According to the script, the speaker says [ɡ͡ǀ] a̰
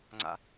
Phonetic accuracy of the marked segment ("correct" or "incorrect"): incorrect